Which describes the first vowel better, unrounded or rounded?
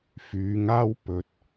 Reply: rounded